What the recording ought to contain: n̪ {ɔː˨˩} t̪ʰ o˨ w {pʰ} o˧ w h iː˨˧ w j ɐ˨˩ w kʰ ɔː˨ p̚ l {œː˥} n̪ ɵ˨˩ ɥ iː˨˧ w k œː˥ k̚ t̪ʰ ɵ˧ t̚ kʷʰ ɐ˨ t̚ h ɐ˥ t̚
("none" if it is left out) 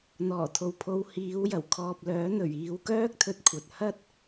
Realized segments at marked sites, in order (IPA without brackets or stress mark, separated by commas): ɔː˨˩, pʰ, œː˨˥